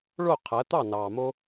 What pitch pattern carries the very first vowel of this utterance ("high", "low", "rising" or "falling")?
falling